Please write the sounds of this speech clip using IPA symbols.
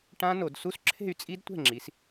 ʈ ã˦˥ n o˧˩˧ d s u˦˥ s ǁʰ e̤˥˨ y̯ t͡sʼ i˦˥ d tʷ ɛ̤˥˨ ŋ͡ǁ i˩˧ s

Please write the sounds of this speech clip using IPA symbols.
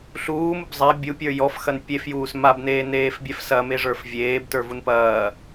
ɬ uː m u b zˤ a bʲ u pʲ ə˞ j ɔ f x ɐ n pʲ e f j uː s m a b n eː n eː f bʲ ɛ f s ɐ m e ʐ ə˞ f vʲ eː b t ə˞ v u n p ɐː

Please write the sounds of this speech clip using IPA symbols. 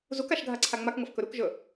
z u k a ʃ ɡʱ a ǀʰ a ŋ͡m a k ŋ ɐ f k ɵ ɾ u k ʒ ɵ

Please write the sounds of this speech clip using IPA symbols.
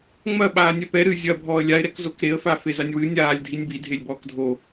ŋ͡m ɐ ɓ aː nʲ ɛ p ɛ ɾ ɨ zʲ ɐ bʱ ɔː ə̯ lʲ a ɪ̯ ɾ ɛ k z o k ɾ e ə̯ f a f e z a nʲ w ɨ nʲ aː lʲ dʱ i nʲ b i dʱ e lʲ b ɔː k dʱ o

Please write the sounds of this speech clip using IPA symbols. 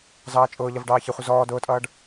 z ɑː t͡ʃʼ ʊː ʎ ʌ v ɖ ɑː ç ɪ χʷ ə z ɔː d ʊː tʼ ʌː ɖ

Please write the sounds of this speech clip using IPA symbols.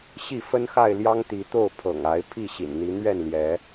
ɕ i˥˨ f ə˦ n x a˥˨ ɪ̯ l j ɑ˦ ŋ t̪ i˨˦ t̪ o˥˨ ʊ̯ pʰ ɤ̰˨˩ ŋ a˨˦ ɪ̯ pʰ i˥˨ ɕ ḭ˨˩ n n̪ i˨˦ n̪ ɥ ɛ˥˨ n l j ɛ˨˦

